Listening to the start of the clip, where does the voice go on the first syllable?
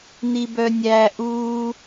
high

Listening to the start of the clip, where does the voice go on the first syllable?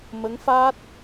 rising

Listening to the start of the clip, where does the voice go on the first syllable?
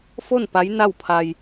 falling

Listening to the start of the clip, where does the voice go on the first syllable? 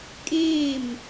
falling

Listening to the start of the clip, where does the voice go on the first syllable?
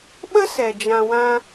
high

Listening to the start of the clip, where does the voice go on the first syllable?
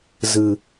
low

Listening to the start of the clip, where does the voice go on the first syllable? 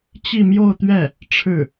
falling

